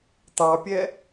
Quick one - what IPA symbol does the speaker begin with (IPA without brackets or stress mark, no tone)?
t̪